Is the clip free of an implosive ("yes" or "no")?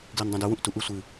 yes